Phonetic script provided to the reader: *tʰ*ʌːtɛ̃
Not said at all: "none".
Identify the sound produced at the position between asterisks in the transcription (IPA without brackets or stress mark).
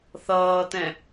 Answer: θ